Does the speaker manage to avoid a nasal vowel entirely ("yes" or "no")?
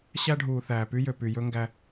yes